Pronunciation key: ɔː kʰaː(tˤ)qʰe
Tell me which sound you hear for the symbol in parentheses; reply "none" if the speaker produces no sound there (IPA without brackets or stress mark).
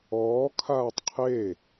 tˤ